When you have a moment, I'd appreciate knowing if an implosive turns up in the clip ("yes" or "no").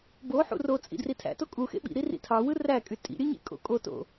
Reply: yes